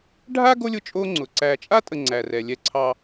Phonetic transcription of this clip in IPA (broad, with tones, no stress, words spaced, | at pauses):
ɖʱa˥ ɡo˥lʲʊ˦t͡ʃʼo˦ ŋ͡ǀʊ˩ǀæ˨t͡ʃʼa˥tʼə˨ ŋ͡ǀæ˩rɛ˩ lʲɛ˨ǀʰɑ˨